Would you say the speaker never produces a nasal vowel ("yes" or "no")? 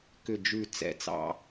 yes